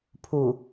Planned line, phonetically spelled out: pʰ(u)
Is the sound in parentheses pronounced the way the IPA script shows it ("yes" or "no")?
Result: yes